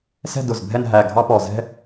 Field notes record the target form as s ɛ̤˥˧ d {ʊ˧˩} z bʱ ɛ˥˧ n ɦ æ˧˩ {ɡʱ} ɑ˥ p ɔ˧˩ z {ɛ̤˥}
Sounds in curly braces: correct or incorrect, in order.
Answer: correct, correct, correct

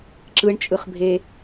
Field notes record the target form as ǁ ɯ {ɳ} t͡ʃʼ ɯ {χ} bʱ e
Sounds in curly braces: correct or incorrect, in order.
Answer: correct, correct

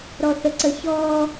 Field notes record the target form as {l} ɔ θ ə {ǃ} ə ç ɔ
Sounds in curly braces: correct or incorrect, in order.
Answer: incorrect, incorrect

